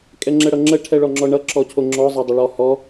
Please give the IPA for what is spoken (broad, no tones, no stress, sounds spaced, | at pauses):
kʼ ɛ ŋ͡ǁ ɛ ɽ ʌ ŋ͡ǁ ə ʈʰ ɛ ɭ ɔ ŋ͡ǁ ɔ ɳ ʌ ǁ ɔ cʰ o ŋ͡ǁ ɔ zˤ ɛ dˤ ə ɭ ɔ h ɔ